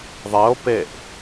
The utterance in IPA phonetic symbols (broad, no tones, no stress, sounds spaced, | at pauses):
ðˤ e o̯ p e ʔ